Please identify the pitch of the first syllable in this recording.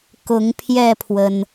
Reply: rising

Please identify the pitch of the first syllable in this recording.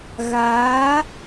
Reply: rising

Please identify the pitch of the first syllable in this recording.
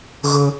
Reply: high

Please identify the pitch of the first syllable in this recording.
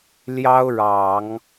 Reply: high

